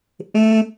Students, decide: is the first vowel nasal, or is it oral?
nasal